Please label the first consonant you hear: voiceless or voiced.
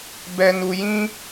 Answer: voiced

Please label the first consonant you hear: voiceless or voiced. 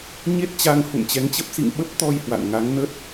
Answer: voiced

